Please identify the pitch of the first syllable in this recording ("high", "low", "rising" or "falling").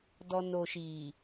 low